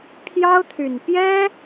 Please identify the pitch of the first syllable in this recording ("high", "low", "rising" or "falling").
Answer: high